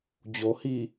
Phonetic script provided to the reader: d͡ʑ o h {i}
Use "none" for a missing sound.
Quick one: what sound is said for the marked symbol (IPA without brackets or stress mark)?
i